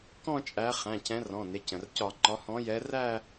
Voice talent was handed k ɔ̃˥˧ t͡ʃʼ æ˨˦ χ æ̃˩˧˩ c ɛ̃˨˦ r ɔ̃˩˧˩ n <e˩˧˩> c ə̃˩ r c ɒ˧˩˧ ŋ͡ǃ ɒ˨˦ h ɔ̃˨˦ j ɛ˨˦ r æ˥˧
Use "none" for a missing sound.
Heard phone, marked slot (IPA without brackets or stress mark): e˩˧˩